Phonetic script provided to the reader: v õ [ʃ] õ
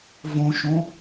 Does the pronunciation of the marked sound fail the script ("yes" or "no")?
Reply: no